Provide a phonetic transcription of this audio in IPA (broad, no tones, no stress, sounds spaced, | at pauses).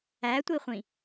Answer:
æ tʷ i χʷ ĩ